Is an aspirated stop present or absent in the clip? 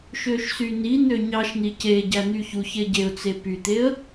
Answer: absent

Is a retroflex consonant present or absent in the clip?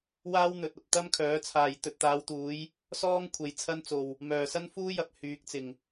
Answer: absent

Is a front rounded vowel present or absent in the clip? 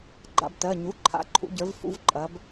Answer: absent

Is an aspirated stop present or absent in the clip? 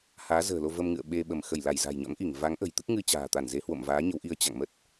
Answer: absent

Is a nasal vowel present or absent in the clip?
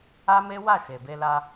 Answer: absent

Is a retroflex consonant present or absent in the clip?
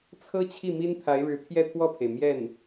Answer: present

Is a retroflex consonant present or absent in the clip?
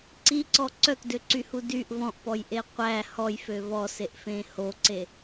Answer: absent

